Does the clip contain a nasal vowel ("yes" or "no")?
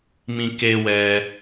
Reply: yes